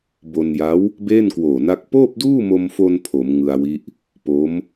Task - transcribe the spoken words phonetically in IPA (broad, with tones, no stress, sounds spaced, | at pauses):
b o˧ n j a˦˥ w | b eː˥˩ n k w oː˨˩ n a˦˥ k̚ p oː˥˩ p̚ d uː˥˩ m o˧ m f o˧ n pʰ o˩˦ m ŋ ɯ˧ a̯ w i˦˥ ʔ | p o˦˥ m